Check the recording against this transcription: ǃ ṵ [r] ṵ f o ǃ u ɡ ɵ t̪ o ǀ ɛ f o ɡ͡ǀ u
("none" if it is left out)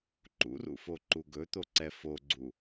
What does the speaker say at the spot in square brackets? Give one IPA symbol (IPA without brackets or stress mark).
r